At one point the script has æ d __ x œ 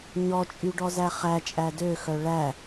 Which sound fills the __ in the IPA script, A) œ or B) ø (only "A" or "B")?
B